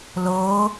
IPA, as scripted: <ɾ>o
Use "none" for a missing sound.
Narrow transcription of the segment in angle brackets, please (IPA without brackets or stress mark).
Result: l